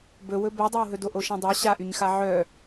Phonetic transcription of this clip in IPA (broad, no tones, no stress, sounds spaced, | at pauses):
b ɵ w ɵ b ɛ dˤ ɛ w ɦ ɵ d o ʔ o ʃ ã dˤ a ɕ a ʔ y ɲ x a ʕ œ